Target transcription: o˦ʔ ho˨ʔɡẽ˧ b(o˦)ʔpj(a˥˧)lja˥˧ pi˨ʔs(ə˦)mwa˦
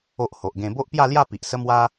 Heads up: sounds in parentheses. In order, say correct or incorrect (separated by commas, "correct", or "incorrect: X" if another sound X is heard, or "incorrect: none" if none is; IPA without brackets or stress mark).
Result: correct, correct, correct